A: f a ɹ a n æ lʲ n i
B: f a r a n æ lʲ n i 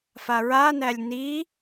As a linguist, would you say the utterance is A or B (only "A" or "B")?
A